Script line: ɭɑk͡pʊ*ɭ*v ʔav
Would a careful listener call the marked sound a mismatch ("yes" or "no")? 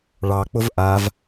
yes